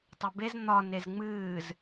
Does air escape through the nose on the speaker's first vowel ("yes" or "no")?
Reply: no